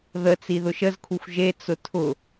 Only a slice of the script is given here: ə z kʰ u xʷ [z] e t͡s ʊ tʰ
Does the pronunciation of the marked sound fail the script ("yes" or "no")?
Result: yes